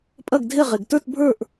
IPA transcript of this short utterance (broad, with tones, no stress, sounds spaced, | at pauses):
pʼ ɐ˥˧ ɡ dʱ e˥˧ ʁ e˧ ɡ t ə˞˥˧ t bʱ ə˞˥˧ ʔ